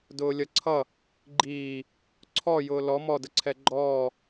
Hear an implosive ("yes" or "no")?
no